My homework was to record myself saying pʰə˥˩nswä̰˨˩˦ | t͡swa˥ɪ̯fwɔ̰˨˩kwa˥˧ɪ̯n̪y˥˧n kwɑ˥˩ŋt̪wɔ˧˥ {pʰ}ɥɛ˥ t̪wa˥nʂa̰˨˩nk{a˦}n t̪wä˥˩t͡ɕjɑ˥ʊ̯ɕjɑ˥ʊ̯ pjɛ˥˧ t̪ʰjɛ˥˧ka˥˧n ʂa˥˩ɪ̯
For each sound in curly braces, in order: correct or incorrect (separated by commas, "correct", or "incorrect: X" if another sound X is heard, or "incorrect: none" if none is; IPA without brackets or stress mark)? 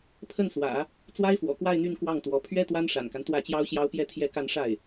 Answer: correct, correct